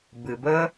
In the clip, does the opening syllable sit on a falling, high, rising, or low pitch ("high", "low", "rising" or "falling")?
low